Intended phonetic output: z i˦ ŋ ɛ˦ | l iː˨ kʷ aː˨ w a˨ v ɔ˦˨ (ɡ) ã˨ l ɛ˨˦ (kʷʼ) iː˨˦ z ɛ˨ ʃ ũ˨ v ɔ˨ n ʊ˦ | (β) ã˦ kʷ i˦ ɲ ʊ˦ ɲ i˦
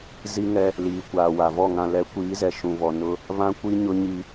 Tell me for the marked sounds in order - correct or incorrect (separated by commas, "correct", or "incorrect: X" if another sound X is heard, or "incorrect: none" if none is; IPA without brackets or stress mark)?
incorrect: ŋ, incorrect: kʷ, correct